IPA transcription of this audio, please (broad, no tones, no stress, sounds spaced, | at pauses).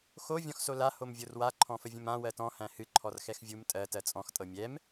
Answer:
x o vʲ ɔ̃ x s o l a h o m vʲ o r w a ǃʰ ɔ̃ f ə vʲ ə̃ m ã w ɜ t ɔ̃ h æ̃ h ɨ ǃʰ ɔ r x ɛ x vʲ u m tʼ ɜ t ɜ t͡sʼ ɔ̃ x tʼ ɤ mʲ ɛ m